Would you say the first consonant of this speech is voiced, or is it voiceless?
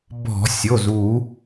voiced